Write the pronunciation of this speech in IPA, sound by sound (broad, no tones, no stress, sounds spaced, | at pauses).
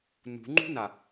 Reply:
n ṳ ŋ͡ǃ ṳ n a